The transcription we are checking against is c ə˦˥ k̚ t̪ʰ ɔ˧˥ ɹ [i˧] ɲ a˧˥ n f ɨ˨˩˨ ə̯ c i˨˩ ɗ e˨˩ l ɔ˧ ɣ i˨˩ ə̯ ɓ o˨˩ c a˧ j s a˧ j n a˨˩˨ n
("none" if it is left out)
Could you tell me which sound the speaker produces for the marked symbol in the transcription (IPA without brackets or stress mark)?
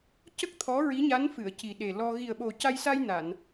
i˧˥